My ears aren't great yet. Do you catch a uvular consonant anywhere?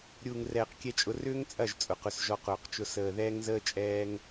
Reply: yes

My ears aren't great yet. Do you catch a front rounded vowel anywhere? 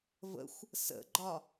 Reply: no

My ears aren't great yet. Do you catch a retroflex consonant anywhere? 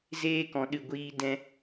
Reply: no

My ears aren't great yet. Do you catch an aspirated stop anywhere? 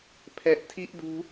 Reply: yes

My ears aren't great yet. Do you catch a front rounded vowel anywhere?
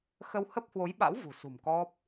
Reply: no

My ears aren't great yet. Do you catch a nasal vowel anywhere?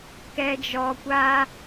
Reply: no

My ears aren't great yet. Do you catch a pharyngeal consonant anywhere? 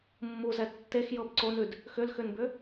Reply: no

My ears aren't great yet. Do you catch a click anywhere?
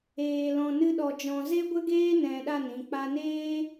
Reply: no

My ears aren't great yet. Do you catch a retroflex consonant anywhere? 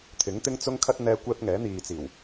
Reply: no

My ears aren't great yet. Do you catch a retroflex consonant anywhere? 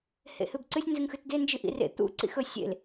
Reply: no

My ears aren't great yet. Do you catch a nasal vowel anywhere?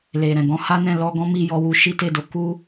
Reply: yes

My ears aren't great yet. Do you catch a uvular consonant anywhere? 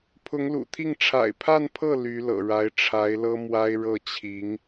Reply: no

